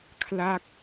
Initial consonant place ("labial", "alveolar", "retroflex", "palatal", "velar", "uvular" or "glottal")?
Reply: velar